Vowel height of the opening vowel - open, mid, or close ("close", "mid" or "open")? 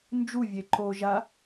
close